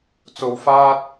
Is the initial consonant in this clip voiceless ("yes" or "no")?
yes